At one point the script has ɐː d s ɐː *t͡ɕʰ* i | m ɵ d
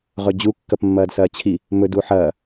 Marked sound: correct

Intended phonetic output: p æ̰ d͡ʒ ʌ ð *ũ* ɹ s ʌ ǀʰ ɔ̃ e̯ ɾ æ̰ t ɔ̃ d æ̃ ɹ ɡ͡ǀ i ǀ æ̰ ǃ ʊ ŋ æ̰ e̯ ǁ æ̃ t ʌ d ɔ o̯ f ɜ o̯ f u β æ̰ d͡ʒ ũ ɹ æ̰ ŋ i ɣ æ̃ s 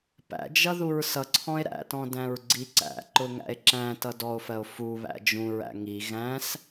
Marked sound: incorrect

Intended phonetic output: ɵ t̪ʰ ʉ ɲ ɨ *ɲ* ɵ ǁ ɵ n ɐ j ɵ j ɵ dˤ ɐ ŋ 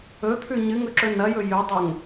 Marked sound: incorrect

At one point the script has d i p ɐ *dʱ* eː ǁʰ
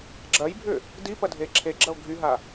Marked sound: correct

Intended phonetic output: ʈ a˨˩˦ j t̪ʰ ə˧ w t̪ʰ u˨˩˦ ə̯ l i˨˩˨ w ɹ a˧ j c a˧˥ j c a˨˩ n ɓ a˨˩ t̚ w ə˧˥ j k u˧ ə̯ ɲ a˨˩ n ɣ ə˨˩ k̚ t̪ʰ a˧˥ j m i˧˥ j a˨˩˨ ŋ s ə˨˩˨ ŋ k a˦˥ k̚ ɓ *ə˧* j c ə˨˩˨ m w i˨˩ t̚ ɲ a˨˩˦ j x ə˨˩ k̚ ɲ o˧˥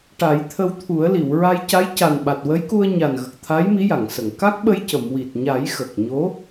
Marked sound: correct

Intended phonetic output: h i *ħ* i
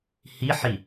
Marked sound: correct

